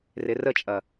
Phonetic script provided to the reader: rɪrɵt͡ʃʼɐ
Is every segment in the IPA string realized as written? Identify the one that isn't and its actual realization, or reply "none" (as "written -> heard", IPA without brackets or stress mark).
ɵ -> ə